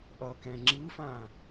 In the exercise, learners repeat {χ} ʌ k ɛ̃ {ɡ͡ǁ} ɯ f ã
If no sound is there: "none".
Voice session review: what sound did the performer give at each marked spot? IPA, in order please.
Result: ʔ, ŋ͡ǁ

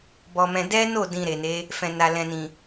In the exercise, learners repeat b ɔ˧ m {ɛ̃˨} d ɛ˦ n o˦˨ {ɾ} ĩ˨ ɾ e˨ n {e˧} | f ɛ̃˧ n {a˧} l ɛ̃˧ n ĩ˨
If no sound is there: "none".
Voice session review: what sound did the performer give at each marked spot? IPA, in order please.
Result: ɛ̃˧, d, e˨˦, a˧

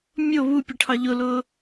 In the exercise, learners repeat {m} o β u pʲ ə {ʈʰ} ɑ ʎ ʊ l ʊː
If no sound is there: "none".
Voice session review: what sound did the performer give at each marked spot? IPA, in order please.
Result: mʲ, ʈʰ

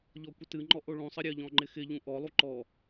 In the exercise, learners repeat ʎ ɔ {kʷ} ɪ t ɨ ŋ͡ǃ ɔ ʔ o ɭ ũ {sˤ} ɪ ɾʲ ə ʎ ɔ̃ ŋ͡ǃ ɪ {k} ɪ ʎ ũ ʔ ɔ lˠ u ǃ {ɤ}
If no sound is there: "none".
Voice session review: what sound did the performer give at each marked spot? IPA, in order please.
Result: kʷ, sˤ, x, ɔ

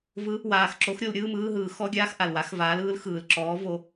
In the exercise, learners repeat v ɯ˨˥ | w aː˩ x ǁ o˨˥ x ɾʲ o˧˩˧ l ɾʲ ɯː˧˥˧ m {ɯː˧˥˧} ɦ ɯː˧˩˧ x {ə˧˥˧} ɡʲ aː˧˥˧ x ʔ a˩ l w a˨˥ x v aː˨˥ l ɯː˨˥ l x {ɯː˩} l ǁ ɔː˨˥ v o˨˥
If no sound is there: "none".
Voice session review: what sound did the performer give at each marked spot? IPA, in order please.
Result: ɯː˧˥˧, ɔ˧˥˧, ɯː˩

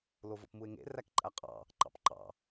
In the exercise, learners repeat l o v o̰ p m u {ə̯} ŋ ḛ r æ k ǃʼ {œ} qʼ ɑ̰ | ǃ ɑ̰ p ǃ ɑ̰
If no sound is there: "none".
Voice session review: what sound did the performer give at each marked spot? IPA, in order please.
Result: ɪ̯, æ

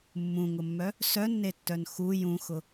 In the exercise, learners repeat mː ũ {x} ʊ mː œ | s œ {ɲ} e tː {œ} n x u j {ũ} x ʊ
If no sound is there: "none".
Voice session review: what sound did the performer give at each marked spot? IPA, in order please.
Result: ŋ, nː, œ, ũ

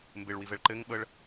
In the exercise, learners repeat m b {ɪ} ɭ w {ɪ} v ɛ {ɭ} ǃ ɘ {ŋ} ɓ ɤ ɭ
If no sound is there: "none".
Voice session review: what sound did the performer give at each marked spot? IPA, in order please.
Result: ɪ, i, ɭ, ŋ

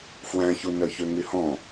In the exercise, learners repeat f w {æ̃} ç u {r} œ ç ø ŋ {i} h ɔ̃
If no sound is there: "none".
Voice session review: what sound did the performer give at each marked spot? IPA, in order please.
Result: æ̃, n, y

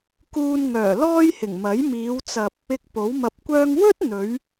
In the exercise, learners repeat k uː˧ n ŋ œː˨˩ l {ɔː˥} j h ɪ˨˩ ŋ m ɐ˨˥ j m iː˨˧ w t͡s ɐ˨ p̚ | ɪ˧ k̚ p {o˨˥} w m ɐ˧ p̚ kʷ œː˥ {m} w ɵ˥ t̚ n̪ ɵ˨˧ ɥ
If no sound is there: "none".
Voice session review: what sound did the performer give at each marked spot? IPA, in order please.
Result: ɔː˥, o˨˥, ŋ

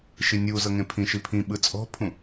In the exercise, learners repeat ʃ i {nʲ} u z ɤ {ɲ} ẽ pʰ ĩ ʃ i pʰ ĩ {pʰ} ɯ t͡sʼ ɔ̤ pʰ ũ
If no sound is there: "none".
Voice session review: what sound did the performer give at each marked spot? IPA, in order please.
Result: nʲ, ŋ, ɓ

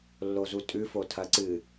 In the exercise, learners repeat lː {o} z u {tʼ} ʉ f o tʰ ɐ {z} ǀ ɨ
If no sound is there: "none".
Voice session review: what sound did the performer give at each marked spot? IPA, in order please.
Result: o, tʼ, none

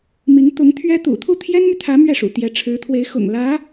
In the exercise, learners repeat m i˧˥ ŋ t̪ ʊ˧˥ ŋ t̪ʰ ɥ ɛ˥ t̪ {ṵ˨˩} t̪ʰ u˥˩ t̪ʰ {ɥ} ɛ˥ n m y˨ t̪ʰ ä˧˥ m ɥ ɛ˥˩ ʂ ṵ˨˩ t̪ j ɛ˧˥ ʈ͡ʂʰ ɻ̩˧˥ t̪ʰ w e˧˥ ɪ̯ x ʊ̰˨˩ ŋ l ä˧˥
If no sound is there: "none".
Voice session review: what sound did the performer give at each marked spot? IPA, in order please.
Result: ṵ˨˩, j

